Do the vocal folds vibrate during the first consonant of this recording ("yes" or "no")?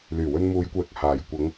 yes